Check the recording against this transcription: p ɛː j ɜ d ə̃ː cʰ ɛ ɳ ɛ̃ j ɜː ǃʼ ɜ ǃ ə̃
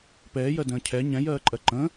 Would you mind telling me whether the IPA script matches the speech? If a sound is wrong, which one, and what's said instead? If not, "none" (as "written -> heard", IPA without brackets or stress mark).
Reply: ɳ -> ɲ